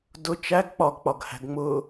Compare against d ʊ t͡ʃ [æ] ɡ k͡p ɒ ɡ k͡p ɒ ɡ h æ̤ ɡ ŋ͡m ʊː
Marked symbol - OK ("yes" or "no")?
yes